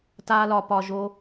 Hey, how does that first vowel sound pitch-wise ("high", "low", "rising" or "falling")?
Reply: high